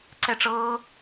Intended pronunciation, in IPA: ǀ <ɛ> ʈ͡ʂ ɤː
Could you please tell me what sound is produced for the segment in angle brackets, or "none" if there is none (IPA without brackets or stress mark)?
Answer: ɛ